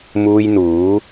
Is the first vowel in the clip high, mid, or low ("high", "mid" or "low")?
high